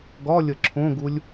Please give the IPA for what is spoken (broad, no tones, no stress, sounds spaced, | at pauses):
ɡ ɒ lʲ ə ǁʰ õ ɡ u lʲ